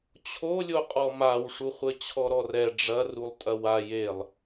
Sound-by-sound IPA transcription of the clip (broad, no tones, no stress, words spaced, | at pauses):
t͡ɕʰolʲoqʼɔ mawʂuχʷɘ t͡ɕʰɔɾɔrɛ ɖ͡ʐɐrulˠ tʼɐwa jelˠ